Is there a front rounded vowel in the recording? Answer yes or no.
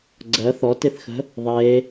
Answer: no